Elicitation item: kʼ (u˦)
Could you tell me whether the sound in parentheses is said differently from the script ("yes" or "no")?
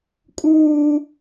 yes